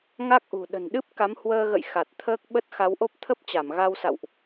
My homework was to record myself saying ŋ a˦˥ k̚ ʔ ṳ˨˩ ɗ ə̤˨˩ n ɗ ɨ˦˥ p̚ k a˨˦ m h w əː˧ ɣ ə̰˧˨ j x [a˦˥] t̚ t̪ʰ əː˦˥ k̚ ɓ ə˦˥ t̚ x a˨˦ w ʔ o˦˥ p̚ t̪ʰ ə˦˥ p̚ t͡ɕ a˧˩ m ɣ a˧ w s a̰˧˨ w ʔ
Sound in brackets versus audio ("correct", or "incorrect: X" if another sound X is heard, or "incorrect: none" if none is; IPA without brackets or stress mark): incorrect: a˨˩